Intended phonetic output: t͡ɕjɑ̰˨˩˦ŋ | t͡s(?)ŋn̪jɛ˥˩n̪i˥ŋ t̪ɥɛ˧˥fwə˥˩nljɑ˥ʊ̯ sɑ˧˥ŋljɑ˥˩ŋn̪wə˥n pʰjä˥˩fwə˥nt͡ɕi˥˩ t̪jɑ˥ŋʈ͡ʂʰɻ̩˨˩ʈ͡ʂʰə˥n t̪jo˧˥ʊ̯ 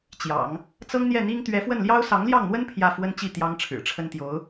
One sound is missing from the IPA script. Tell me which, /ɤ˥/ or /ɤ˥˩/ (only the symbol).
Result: ɤ˥